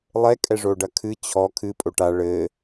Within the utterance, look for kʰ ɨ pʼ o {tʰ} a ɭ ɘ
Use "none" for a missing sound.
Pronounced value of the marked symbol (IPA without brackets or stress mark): ʈ